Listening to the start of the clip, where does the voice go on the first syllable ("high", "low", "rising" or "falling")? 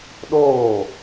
falling